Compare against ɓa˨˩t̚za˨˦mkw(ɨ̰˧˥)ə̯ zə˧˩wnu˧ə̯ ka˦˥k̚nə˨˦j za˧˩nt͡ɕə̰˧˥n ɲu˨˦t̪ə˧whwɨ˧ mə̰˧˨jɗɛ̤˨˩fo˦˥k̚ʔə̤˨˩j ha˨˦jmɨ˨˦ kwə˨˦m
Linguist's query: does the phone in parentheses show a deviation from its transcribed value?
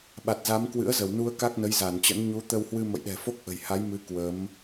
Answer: no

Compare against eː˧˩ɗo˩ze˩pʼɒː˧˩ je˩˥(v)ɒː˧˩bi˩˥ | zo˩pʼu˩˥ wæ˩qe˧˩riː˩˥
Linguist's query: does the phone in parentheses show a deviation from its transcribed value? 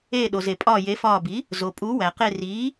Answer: yes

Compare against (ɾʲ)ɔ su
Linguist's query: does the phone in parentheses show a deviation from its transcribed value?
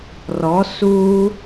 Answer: yes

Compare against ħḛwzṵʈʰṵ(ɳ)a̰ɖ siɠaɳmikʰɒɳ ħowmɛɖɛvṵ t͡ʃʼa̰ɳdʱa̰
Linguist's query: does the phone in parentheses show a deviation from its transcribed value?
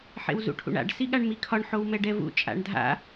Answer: no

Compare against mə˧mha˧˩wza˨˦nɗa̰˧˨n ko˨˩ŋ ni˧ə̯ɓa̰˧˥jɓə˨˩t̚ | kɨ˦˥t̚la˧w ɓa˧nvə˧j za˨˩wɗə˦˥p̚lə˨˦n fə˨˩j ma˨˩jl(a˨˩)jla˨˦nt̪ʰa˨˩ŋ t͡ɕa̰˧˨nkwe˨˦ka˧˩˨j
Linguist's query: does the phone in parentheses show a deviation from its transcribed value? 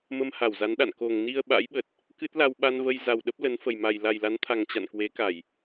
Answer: no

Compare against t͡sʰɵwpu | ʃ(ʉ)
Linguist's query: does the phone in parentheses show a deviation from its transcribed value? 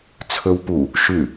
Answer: no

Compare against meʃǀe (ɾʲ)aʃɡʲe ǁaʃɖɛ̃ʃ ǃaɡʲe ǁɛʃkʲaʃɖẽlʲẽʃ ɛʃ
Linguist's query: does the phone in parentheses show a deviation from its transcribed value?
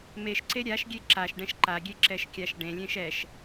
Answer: no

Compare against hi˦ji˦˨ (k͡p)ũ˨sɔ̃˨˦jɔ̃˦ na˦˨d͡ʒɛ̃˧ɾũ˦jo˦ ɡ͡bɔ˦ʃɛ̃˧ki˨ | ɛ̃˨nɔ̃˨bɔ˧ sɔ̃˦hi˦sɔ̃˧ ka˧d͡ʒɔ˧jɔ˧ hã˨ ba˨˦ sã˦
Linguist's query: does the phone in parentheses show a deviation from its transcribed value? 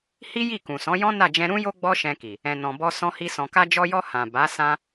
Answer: yes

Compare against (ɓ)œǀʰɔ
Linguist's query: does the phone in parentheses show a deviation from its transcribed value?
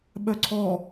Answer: no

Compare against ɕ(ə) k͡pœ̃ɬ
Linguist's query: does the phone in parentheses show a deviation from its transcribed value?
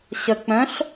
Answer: no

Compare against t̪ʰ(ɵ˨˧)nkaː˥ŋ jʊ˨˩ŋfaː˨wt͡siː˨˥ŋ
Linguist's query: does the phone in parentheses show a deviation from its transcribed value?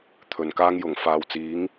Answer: yes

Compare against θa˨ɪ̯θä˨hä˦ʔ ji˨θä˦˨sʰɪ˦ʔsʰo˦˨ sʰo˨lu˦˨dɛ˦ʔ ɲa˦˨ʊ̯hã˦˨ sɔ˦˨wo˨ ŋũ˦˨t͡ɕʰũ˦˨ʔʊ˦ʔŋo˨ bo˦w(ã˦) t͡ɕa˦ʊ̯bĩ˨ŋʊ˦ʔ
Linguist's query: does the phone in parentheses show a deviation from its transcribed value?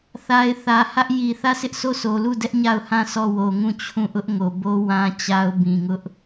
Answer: no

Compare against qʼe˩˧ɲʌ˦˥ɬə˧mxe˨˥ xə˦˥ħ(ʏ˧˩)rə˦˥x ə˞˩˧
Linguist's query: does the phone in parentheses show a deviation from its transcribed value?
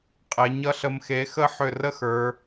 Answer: no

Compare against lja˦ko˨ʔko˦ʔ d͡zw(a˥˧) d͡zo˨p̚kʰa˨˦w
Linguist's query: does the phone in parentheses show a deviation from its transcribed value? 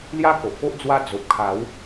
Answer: yes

